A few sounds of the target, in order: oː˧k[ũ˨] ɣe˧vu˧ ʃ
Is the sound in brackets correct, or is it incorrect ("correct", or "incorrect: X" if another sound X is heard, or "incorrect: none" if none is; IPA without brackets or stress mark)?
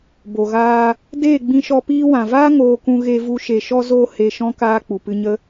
incorrect: ũ˧